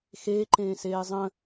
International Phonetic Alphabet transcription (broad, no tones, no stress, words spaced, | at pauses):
xeːǃẽːseː zˤə̃